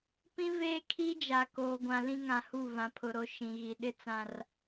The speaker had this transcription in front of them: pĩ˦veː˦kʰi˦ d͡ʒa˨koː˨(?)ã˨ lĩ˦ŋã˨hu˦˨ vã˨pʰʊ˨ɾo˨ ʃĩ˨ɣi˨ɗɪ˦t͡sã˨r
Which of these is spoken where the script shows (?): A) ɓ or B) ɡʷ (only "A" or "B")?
B